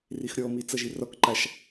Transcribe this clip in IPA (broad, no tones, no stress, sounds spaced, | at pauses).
r i x ɾʲ ɔ m i t͡s ʌ ʒ i r ɔ k ǃ a ʃ